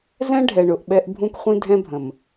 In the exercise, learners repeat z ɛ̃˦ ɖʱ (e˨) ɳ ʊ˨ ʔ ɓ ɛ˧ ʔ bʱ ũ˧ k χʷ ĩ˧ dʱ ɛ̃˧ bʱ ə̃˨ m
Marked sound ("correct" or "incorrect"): incorrect